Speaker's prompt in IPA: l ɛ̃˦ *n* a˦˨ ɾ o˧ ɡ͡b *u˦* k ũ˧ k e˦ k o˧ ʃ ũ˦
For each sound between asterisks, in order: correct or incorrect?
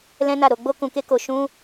correct, incorrect: o˦

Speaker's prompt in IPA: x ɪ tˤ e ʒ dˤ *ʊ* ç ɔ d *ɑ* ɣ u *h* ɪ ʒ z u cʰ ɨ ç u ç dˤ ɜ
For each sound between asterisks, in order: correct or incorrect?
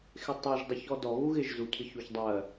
correct, incorrect: ɔ, incorrect: ɣ

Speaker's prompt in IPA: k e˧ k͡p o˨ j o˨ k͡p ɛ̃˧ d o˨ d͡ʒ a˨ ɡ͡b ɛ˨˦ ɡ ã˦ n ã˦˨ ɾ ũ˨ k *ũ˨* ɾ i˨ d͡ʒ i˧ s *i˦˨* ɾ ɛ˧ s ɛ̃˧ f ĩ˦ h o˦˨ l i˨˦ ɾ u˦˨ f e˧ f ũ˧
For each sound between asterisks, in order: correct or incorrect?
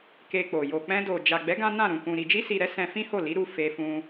correct, incorrect: i˨

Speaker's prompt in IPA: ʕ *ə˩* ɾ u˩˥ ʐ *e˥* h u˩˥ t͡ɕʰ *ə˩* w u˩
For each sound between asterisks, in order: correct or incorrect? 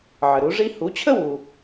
correct, incorrect: i˥, incorrect: ə˥

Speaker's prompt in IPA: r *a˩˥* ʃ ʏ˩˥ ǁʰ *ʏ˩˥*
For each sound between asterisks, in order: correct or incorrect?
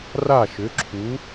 incorrect: a˥˩, incorrect: u˩˥

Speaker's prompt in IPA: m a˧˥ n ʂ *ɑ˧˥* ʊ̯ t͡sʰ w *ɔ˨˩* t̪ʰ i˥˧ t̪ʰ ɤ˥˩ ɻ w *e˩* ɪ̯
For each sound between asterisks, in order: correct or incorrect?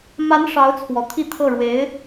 correct, correct, incorrect: e˧˥

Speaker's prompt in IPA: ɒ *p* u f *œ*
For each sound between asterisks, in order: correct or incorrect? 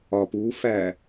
correct, incorrect: æ

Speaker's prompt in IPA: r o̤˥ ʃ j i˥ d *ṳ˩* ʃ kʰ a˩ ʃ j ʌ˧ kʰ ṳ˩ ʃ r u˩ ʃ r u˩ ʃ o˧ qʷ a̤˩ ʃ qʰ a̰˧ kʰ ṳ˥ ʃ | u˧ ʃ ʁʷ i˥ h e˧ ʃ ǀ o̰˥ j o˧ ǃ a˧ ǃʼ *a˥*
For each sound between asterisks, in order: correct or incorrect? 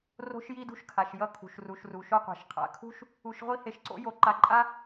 incorrect: ṳ˥, correct

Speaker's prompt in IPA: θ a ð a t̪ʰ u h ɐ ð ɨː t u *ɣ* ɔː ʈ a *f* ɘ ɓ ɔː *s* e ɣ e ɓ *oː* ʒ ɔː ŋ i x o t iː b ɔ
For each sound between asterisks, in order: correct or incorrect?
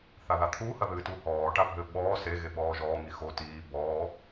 incorrect: h, incorrect: bʱ, correct, incorrect: ɔː

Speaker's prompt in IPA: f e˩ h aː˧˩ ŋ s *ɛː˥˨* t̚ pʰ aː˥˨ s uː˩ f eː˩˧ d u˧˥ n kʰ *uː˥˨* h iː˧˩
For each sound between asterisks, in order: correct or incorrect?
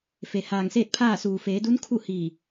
incorrect: eː˥˨, incorrect: u˥˨

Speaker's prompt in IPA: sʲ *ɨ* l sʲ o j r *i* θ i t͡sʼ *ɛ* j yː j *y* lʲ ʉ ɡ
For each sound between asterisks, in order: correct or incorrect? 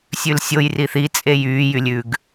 incorrect: ʉ, correct, incorrect: e, correct

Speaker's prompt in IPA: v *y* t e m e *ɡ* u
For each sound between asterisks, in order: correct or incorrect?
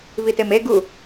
incorrect: i, correct

